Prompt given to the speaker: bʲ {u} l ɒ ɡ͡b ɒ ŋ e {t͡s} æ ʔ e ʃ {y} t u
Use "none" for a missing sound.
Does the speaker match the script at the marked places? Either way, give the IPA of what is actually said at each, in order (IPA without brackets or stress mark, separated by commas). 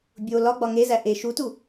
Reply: o, z, u